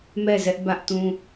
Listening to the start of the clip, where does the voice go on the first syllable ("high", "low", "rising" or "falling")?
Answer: falling